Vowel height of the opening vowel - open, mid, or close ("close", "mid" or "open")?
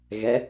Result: mid